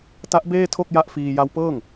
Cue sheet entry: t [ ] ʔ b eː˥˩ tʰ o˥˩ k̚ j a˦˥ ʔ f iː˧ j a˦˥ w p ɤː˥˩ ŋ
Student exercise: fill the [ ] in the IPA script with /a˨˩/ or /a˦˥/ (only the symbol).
a˦˥